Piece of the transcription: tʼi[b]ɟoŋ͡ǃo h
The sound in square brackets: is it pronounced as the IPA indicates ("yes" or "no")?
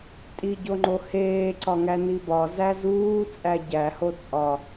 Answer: no